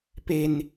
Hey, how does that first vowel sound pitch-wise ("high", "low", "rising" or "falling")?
high